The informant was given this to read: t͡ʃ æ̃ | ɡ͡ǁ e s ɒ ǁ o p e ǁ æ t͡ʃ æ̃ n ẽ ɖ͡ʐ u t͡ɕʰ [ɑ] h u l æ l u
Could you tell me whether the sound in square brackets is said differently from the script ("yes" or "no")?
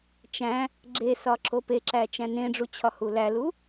yes